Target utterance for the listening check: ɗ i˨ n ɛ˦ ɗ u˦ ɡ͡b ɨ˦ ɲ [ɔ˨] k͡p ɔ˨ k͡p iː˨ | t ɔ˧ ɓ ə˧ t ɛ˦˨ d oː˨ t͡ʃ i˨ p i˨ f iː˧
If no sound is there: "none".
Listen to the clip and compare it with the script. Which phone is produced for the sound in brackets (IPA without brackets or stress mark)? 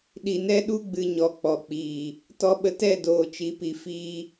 ɔ˧